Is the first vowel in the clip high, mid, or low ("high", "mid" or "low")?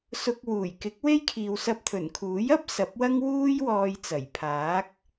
high